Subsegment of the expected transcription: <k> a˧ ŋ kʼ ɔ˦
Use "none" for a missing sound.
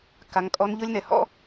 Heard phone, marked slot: k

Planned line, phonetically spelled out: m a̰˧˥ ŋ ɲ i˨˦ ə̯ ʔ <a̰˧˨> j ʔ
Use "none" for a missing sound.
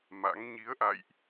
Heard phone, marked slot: a̰˧˨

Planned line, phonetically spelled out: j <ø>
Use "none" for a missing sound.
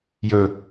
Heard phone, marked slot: ɵ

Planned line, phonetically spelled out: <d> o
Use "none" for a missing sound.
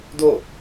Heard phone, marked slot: d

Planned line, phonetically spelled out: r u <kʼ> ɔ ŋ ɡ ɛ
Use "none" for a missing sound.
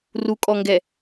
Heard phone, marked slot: kʼ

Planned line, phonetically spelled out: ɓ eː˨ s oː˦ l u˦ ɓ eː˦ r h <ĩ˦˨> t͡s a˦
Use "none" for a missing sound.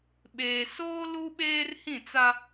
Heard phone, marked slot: ĩ˦˨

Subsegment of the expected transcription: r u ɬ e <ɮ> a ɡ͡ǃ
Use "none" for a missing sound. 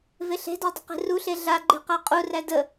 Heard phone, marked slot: ɮ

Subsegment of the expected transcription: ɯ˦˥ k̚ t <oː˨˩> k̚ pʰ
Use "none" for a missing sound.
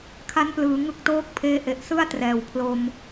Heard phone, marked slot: oː˦˥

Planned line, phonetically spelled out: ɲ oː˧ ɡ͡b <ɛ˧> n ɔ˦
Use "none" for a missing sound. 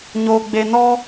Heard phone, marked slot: e˧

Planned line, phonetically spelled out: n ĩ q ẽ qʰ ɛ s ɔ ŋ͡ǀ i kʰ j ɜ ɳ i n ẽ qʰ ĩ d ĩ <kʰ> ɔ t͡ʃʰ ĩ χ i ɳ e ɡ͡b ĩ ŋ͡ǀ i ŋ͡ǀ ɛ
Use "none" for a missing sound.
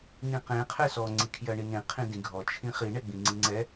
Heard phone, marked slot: ɡʱ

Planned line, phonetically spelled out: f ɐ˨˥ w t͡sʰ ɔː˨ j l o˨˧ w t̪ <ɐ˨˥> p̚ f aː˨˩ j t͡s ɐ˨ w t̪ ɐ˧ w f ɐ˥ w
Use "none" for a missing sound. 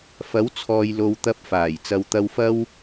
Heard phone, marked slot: ɐ˧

